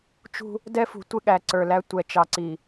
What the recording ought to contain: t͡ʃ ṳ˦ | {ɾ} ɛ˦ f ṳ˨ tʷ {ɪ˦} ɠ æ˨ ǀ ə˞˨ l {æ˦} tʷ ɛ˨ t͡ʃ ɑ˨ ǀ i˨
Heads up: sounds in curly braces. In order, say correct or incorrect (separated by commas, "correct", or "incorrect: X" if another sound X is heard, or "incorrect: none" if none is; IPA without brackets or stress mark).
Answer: incorrect: d, correct, correct